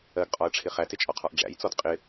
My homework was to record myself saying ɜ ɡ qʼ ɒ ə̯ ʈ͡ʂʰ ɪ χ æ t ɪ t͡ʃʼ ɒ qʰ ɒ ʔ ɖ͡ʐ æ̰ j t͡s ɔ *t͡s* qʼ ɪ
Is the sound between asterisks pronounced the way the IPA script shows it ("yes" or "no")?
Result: no